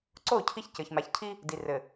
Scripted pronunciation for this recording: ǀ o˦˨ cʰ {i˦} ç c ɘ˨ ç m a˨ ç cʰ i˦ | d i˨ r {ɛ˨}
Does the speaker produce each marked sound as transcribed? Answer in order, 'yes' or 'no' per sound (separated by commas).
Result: yes, no